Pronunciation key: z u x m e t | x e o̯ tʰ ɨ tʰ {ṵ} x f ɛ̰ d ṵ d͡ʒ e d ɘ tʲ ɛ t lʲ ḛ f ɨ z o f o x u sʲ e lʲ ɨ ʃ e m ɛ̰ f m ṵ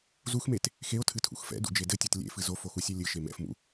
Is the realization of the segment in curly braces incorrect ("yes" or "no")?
no